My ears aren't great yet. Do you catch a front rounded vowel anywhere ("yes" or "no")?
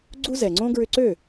yes